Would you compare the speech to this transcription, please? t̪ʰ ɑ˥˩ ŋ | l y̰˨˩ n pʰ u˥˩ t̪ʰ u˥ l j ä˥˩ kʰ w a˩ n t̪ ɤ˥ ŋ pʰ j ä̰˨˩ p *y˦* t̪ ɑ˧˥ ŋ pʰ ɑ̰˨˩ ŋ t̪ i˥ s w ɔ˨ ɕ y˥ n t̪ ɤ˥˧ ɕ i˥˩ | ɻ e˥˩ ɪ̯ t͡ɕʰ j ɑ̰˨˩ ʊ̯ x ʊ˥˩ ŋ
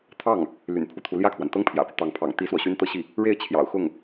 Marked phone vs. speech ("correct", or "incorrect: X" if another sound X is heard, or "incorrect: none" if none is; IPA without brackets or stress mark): correct